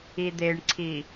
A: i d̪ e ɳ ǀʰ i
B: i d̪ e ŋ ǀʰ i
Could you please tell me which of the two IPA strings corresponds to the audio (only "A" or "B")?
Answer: A